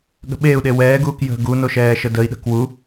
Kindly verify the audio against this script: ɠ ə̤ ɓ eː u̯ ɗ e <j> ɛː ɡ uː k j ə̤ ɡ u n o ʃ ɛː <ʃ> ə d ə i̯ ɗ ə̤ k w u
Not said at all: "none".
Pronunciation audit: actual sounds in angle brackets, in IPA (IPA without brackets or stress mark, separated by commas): w, ʃ